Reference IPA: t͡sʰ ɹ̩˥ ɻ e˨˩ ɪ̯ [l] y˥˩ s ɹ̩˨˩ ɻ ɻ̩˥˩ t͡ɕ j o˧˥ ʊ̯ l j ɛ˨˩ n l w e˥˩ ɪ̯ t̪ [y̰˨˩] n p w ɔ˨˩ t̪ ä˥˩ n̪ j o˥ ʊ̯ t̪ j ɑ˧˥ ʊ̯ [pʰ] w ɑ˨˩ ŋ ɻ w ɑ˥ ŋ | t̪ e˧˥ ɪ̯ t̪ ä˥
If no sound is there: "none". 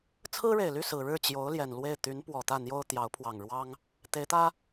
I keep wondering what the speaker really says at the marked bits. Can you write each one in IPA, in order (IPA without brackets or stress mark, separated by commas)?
l, y˧˥, pʰ